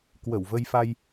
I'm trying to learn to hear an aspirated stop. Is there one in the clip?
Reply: no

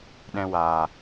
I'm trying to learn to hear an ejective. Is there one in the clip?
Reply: no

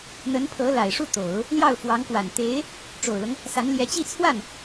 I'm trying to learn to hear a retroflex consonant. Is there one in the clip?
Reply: yes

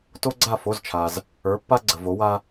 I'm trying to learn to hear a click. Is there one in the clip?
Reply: yes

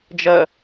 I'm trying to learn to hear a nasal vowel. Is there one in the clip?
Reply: no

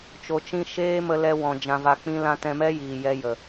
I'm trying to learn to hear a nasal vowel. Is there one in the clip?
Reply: yes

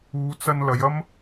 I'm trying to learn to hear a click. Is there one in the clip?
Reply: no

